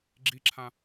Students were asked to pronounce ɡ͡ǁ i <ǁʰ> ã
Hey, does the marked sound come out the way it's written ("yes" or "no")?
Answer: yes